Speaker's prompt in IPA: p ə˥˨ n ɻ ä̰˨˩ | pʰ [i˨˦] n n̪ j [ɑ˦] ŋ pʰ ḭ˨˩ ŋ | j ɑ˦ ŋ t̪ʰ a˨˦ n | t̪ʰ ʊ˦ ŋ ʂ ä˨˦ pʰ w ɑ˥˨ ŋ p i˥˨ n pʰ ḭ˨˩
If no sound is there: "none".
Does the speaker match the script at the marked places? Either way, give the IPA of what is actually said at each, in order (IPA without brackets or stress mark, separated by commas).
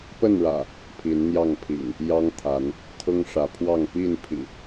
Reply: i˨˦, ɑ˥˨